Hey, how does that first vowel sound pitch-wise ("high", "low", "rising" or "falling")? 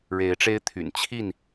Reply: rising